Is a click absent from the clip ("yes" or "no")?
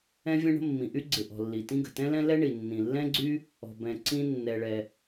no